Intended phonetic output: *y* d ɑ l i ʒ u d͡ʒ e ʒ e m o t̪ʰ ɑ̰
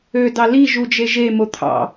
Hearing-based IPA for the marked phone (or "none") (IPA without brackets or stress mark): ø